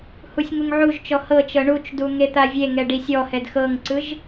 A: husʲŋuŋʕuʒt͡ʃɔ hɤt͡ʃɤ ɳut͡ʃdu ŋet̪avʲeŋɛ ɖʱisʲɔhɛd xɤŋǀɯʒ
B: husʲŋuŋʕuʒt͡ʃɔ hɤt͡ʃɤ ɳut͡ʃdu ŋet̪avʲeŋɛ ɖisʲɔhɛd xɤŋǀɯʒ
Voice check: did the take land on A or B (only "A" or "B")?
B